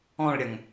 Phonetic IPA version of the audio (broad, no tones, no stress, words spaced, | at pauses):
ɔ̃ɭɾʲɐŋ